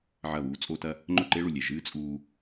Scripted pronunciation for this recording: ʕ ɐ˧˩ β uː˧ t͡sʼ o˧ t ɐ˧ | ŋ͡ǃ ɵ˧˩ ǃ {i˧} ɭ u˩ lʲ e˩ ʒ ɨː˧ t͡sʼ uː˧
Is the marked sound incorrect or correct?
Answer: incorrect